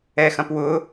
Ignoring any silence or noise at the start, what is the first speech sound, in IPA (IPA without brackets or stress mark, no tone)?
ɛ